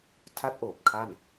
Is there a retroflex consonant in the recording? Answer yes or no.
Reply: no